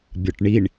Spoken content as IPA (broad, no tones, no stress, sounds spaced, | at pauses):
bʲ ɒ ʈ ɳ i ɳ